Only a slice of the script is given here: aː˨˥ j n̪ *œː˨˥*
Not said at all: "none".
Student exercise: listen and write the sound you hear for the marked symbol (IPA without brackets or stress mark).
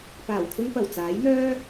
œː˥